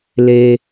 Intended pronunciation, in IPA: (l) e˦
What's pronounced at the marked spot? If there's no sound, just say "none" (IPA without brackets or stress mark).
l